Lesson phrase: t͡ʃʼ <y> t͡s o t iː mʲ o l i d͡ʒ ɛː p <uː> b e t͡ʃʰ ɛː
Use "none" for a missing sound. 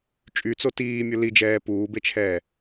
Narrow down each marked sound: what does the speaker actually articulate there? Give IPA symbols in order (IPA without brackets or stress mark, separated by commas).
y, uː